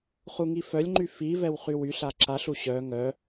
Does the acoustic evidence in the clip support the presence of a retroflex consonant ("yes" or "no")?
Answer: no